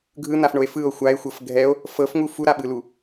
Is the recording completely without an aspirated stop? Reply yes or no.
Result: yes